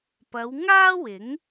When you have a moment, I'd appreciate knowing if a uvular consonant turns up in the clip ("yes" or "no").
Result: no